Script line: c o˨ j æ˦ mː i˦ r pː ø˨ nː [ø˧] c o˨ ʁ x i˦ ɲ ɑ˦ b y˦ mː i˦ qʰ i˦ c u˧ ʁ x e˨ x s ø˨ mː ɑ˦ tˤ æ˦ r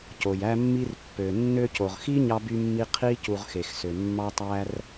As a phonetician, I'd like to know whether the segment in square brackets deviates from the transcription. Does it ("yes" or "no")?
no